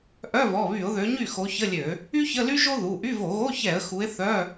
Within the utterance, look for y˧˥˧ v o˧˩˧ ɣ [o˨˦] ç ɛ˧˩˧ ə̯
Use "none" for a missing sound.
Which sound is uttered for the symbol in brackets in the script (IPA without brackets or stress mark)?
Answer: o˧˥˧